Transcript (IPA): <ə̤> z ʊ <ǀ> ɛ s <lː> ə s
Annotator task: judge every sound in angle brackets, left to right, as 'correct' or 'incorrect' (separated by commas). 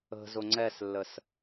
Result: correct, incorrect, correct